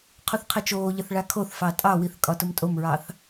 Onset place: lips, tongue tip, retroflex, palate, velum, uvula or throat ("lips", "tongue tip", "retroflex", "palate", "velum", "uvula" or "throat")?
uvula